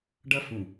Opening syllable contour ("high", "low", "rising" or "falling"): high